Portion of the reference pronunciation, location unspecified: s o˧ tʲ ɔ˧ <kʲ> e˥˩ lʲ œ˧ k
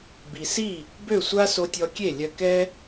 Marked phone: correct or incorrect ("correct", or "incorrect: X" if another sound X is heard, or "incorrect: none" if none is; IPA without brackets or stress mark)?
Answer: correct